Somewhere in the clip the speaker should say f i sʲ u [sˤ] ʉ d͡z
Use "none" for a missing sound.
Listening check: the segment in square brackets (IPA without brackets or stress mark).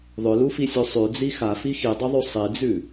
sˤ